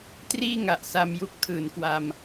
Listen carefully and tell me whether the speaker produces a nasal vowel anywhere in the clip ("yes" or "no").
no